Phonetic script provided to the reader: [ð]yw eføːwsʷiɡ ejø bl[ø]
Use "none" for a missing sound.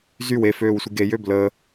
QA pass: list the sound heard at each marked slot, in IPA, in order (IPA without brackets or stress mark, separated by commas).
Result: z, ə